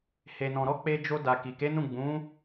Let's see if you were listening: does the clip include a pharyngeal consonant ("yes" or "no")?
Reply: no